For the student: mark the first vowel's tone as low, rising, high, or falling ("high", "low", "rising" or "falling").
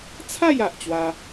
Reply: falling